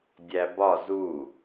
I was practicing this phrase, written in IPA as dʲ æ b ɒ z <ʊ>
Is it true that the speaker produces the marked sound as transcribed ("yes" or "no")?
no